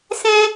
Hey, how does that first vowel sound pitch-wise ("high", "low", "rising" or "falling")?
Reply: high